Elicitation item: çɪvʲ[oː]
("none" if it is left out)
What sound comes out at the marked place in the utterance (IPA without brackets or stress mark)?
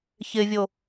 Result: o